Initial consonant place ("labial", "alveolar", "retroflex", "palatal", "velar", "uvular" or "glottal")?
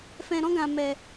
labial